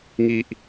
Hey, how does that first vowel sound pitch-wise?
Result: high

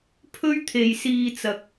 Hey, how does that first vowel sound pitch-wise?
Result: high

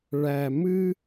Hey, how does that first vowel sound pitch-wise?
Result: low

